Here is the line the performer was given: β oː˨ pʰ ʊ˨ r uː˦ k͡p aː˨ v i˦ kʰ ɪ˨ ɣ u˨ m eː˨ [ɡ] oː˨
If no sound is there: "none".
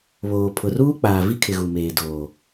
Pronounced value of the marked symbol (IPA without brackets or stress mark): d